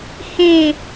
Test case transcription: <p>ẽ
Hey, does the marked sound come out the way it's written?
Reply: no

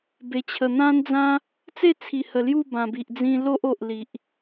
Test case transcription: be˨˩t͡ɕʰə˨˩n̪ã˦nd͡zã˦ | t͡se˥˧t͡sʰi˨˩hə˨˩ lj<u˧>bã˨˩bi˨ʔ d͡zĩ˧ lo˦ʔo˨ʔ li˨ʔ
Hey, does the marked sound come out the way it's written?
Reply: no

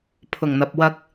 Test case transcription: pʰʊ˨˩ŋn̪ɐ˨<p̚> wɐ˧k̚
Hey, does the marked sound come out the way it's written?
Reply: yes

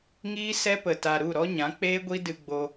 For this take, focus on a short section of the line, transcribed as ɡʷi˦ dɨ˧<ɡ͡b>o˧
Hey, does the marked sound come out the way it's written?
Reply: yes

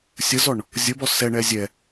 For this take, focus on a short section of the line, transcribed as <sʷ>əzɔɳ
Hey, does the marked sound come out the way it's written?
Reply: no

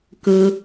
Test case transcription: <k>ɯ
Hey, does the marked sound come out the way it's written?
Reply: yes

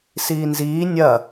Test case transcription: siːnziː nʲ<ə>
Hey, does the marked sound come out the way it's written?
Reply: no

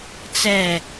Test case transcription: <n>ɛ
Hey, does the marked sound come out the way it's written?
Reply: no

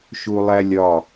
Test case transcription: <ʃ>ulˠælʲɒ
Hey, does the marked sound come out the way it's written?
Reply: yes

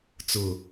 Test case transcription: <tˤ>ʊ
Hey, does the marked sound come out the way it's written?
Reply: no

